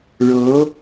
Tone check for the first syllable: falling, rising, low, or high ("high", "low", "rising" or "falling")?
rising